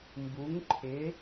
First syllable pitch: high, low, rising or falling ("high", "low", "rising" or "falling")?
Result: rising